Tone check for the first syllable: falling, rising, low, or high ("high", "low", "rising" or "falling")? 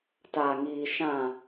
low